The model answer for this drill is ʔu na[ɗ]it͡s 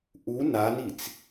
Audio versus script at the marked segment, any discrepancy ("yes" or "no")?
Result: yes